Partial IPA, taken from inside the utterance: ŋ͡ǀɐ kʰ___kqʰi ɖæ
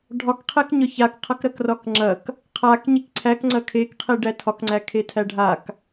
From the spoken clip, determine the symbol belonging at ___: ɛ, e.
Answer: e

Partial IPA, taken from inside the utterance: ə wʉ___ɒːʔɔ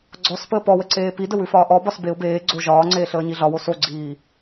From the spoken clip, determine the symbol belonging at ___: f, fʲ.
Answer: f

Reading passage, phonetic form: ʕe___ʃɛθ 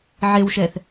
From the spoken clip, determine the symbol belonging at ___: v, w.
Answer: w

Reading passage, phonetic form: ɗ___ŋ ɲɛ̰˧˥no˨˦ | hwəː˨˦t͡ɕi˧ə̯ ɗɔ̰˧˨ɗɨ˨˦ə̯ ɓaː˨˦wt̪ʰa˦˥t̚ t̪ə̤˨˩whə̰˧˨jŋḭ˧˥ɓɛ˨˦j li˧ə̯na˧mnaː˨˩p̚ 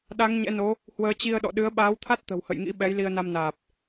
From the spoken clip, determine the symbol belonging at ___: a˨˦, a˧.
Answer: a˨˦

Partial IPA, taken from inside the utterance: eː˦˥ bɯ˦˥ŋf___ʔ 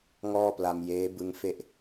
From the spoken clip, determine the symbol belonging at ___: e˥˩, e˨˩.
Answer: e˥˩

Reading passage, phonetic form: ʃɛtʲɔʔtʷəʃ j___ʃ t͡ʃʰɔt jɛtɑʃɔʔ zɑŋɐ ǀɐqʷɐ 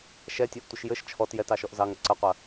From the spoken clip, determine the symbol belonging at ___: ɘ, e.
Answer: ɘ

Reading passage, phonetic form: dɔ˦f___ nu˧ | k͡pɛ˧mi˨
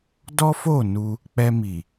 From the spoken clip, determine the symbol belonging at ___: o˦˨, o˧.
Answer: o˦˨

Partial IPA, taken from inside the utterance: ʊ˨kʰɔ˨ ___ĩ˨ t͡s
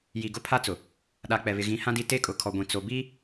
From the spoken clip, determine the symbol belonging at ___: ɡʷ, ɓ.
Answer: ɡʷ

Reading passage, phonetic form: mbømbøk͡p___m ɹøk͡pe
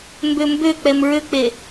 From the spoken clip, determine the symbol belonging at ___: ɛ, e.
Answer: ɛ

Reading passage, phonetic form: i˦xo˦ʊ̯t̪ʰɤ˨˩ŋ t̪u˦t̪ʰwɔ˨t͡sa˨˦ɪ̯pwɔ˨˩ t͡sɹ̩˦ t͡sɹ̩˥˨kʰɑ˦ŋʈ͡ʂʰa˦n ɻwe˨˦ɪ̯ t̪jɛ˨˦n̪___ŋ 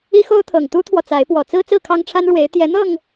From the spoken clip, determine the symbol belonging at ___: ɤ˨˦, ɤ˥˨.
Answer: ɤ˥˨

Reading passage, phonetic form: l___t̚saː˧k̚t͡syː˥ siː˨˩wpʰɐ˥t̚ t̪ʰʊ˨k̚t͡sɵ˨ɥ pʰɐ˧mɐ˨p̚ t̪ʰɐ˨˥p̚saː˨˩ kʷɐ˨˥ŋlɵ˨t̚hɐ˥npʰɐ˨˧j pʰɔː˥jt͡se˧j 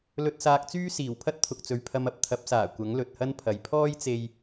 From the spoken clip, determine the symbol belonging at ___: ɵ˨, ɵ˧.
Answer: ɵ˧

